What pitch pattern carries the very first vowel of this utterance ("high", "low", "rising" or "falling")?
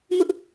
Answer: high